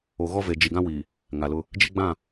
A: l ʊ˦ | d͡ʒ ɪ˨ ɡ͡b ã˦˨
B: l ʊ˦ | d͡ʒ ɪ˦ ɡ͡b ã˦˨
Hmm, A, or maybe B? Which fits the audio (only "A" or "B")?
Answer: B